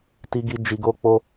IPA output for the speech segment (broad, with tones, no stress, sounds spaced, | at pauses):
t i˧ ɡ i˧ d͡ʒ i˧ ɡ o˦ k͡p o˦